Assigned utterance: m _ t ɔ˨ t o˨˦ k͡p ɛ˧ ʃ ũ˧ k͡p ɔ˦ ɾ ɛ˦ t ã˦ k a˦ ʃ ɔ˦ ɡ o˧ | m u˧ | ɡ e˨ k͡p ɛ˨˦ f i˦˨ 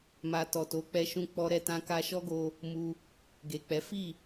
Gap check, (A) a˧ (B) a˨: A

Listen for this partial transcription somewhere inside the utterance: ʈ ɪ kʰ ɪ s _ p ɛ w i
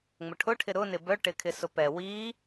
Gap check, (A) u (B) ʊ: B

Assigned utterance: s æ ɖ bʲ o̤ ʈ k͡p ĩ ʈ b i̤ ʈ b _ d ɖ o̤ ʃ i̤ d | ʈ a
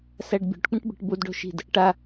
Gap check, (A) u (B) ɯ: A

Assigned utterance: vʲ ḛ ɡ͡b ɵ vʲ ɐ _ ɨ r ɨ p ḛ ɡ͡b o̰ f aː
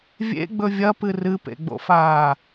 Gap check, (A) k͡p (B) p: B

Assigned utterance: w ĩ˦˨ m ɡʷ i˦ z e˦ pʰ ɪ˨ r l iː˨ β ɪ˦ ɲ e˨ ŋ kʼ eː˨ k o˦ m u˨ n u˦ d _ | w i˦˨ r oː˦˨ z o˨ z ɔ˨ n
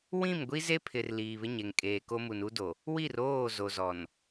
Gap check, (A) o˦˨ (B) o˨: B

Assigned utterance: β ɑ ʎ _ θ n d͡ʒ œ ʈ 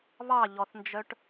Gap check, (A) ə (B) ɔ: B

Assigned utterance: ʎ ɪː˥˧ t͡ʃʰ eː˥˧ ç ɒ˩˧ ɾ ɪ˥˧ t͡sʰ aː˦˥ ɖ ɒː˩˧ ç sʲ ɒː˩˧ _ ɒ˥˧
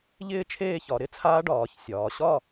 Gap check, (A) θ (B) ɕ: B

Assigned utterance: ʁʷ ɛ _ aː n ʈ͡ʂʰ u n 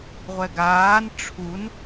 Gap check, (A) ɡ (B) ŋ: A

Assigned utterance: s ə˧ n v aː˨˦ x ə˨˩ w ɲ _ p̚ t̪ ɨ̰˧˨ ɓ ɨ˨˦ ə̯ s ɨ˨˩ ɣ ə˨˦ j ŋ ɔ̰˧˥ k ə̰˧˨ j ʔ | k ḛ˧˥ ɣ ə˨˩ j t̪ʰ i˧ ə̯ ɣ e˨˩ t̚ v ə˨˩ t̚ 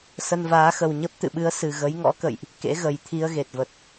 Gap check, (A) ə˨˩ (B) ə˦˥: B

